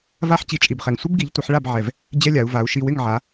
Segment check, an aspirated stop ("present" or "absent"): absent